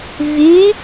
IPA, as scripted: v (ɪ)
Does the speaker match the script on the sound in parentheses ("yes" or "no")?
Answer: no